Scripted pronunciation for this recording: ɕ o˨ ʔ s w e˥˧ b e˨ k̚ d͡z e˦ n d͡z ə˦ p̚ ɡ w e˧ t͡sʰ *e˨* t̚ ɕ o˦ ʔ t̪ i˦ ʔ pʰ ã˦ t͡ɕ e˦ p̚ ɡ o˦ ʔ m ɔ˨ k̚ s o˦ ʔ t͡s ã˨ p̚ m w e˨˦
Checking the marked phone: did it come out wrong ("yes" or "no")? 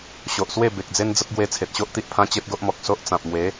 no